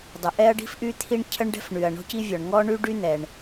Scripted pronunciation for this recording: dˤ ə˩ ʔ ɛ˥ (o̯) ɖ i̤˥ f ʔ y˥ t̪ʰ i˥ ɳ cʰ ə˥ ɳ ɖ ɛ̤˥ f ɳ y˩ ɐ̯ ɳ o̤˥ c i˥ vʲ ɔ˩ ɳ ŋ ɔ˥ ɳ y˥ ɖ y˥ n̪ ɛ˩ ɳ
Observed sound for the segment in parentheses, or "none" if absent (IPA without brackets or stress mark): ɐ̯